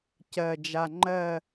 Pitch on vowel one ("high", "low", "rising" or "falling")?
low